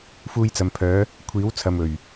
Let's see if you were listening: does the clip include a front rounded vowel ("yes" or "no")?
yes